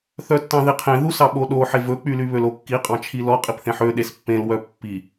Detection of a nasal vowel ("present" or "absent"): present